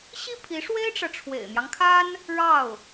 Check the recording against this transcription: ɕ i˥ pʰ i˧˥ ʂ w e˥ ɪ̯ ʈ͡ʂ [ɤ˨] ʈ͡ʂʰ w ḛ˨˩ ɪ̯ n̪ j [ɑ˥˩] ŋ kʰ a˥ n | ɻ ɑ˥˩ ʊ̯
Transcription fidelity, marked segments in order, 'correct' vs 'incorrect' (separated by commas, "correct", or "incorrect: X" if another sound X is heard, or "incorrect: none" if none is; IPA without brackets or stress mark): correct, incorrect: ɑ˦